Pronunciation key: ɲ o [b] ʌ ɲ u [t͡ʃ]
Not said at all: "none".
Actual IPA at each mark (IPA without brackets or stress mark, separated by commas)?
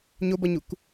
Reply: b, k